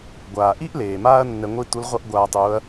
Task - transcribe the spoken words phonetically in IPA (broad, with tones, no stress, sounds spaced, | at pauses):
ɡʷ aː˩ ʔ i˥ ʔ l eː˩ m aː˥ ɐ̯ nː ɛ˧ ŋʷ i˥ t u˧˥ l ʁʷ ʌ˥ ʔ ɡʷ aː˧ tˤ uː˧˥ ɐ̯